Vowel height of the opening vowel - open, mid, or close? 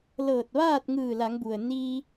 mid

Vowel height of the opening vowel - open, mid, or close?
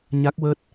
open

